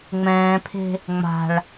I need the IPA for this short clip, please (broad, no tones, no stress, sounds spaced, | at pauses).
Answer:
ŋ͡m ɛ̃ː pʰ e̤ | ŋ͡m a̤ ɭ